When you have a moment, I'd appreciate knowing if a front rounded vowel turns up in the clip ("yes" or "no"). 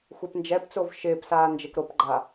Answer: no